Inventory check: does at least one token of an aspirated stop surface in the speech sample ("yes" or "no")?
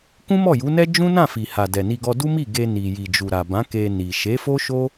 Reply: no